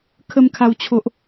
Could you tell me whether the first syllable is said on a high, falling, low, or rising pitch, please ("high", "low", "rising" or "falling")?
high